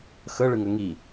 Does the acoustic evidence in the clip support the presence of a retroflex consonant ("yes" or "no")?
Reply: yes